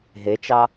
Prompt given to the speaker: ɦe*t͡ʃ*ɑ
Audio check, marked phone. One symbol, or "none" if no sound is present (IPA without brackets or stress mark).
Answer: t͡ʃ